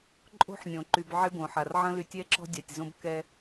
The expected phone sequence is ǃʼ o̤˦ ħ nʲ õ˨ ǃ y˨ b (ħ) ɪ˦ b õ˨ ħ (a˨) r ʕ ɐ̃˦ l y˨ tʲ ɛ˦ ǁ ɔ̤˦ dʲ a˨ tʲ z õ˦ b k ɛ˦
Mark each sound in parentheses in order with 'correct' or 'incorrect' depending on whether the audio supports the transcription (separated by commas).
incorrect, correct